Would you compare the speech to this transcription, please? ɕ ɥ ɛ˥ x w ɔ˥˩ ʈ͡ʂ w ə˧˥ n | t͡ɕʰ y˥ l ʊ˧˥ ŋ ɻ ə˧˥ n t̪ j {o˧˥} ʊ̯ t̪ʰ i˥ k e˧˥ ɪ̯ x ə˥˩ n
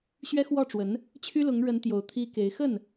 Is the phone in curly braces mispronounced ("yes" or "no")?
no